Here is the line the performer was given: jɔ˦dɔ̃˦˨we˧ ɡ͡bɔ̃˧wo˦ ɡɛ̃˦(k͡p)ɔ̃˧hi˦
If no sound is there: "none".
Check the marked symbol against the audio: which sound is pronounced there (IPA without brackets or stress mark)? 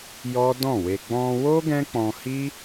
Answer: k͡p